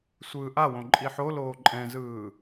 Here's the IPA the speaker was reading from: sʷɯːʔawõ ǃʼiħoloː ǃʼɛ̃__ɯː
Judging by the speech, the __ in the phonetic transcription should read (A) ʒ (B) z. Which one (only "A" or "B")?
B